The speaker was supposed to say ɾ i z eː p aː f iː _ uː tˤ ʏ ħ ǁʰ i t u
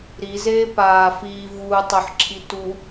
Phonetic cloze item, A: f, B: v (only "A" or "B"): B